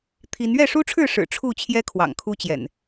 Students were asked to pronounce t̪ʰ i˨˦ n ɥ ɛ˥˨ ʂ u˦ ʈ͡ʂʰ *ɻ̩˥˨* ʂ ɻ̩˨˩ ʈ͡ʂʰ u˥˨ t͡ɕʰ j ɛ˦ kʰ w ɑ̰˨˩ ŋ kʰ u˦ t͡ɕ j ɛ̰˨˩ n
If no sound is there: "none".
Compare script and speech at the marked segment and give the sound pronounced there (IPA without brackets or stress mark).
ɻ̩˥˨